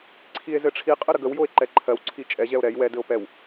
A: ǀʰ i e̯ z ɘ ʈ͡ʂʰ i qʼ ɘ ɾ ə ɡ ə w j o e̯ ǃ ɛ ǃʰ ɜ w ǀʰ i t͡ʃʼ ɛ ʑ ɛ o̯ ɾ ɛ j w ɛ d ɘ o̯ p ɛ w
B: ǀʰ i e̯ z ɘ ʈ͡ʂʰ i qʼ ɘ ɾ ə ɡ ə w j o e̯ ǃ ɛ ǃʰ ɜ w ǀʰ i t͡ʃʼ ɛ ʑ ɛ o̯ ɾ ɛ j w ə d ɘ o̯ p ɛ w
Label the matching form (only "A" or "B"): A